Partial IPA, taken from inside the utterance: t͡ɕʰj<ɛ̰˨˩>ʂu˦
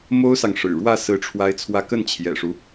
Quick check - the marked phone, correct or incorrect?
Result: correct